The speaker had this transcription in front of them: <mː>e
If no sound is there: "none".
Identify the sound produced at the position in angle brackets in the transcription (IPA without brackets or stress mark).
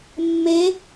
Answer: mː